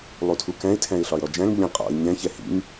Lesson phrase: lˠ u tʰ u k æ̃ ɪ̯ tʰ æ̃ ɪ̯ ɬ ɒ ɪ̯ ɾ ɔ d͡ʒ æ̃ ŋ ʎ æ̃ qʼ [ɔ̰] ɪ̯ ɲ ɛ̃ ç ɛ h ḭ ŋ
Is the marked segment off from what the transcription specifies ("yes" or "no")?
no